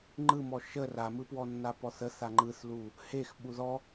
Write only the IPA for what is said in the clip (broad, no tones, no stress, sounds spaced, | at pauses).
ŋ͡ǃ ɯ m ɔ ʃ ə r a m ɯ p w ɔ nː a p ɔ θ ə θ a ŋ͡ǃ ɯ θ l u | h e x ɓ u ð ɔ